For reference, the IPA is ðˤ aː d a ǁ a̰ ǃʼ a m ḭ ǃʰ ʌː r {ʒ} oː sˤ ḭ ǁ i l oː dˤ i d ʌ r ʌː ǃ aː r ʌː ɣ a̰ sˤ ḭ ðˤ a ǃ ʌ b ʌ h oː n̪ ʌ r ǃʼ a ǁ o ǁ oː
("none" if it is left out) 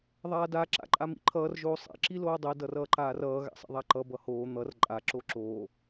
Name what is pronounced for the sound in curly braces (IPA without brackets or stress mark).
ʒ